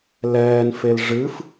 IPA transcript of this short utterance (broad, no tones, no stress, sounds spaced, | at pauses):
l ɛː n f e l ʐ ɨ f